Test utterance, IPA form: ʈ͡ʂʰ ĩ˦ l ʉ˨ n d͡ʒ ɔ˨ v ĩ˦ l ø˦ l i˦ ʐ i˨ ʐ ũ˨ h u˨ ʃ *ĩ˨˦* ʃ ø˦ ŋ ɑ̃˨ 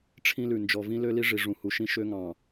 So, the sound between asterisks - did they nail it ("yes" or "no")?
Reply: no